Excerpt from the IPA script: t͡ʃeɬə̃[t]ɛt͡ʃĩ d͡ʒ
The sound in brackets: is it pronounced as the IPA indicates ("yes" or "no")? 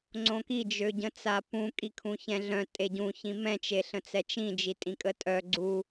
no